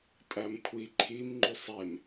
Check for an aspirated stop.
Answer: present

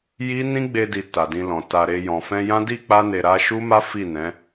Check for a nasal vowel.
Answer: present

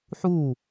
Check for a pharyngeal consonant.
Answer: present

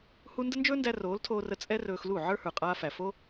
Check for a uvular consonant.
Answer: present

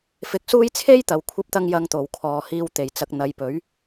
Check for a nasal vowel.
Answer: absent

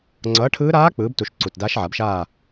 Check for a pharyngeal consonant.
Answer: present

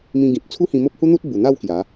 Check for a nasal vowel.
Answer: present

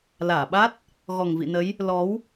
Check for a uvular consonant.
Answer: absent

